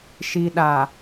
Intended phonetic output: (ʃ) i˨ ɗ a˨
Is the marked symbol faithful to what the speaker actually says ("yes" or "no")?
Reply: yes